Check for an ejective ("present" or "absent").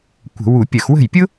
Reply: absent